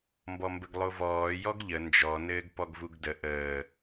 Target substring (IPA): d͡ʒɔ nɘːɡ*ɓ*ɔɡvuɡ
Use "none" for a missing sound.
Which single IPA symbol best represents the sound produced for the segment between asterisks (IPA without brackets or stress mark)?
p